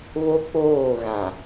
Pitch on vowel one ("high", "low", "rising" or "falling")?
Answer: high